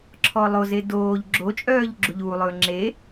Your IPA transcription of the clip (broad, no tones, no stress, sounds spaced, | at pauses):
ǁʰ ɔ lˠ o z e d oː ʎ ɡ͡ǁ o t͡ʃʼ œː ʎ ɡ͡ǁ u ʎ uː lˠ ɵː ŋ͡ǁ e